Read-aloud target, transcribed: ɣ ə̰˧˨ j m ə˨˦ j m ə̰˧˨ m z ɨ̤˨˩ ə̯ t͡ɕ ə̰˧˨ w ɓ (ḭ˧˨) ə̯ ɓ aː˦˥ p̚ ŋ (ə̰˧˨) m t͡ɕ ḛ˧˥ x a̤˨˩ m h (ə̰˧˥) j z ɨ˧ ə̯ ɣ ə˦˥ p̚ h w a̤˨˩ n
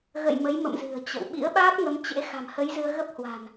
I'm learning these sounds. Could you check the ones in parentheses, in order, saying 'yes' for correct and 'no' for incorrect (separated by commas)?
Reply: no, no, no